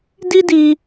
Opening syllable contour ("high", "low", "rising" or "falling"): high